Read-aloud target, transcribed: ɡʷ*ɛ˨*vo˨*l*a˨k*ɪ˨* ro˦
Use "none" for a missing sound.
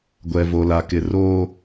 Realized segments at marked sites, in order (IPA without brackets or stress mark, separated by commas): ɛ˨, l, ɪ˨